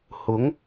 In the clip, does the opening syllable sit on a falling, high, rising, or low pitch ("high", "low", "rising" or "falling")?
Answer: rising